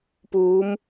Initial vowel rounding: rounded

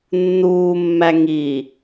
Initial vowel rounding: rounded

